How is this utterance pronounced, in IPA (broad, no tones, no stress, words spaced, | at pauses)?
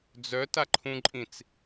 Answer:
d͡zœtaǃʰũǃʼĩt͡s